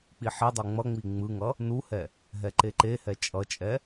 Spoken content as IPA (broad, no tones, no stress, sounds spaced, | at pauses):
k͡p i ħ i dˤ u ŋ͡m ʌ ŋ͡m i ŋ͡m ɯ ŋ ʌ | n u h ɛ | ɦ ɛ ǃ e ǃ e h ɛ t͡ʃʼ ʌ t͡ʃʼ ɛ